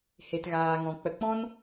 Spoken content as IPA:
he˨tɣaː˨ŋɔ̃˨ k͡pə˨k͡pɔ̃˦n

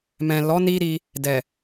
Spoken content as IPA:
mɛ̃˨ lɔ˨˦ ni˦ɾi˧ | dɛ˨

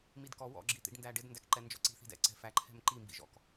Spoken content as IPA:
midkɔ wɔ̰ ɡ͡ǁit̪ḭɖndæɖɪd ndækǃɛnd͡ʒɔ̰ǀi̤ θi̤dɛ̰ ǀɛ̤fæ ǃʰɛ̤mǃi mbḭʒɔ̰k

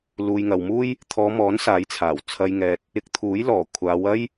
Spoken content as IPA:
luː˨jŋɐ˨wmuː˥j | t̪ʰɔː˨˧mɔː˨˥n saː˨˥j t͡sʰaː˨˩w t͡sʰɐ˨jŋɛː˨t̚ | ɪ˧k̚t̪ʰuː˨˥jlɔː˨˩ kʷʰaː˨˧wɐ˥j

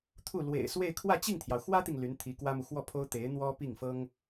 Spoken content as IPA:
t̪ʰu˥˩ lwḛ˨˩ɪ̯swe˥˧ɪ̯ kʰwä˥˧t͡ɕi˥˩ŋt̪ʰjɑ˩ʊ̯ xwä˥t̪i˨ŋ ly˧˥nt̪ʰi˧˥kwä˥mu˨ xwɔ˥˩pʰo˥ʊ̯ t̪e˧˥ɪ̯n̪wɔ˥pi˥˩ŋ fɤ˥ŋ

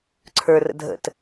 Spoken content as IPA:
ǀʰə˞rə̰ dʱə̰t

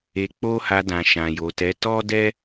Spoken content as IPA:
e˧k͡po˦ha˧dã˨ ʃã˨jo˨tɛ˨˦ tɔ˦dɛ˦

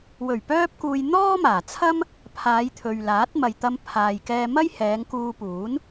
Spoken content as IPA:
wɵ˨˩ɥpœː˧p̚kuː˨j n̪ɔː˥maː˨˩t͡sʰɐ˥m | pʰaː˨˧jt̪ʰɵ˨ɥlaː˨˥t̚ mɐ˨jt̪ɐ˧m pʰaː˨jkɛː˧mɐ˥jhɛː˨˧ŋ kuː˧puː˨˥n

